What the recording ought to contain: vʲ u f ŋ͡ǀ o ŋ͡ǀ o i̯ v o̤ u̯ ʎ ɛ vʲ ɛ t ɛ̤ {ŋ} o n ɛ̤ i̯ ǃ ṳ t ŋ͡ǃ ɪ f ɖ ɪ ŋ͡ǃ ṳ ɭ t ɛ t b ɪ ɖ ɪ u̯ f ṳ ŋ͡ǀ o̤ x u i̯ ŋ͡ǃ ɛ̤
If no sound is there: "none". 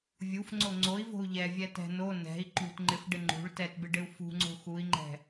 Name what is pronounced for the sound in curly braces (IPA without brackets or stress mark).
n